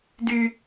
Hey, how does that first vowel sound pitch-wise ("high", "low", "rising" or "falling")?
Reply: high